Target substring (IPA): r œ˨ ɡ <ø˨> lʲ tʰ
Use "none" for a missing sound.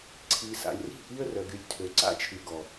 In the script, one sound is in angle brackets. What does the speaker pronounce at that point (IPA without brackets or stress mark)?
y˨